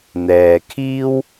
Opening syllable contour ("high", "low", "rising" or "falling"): low